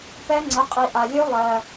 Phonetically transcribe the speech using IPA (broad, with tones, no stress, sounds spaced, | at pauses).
p ɛ˦˥ ŋ͡ǀ ə˩˧˩ qʼ i˩ ʔ a˩ lʲ ø˦˥ lˠ ɜ˩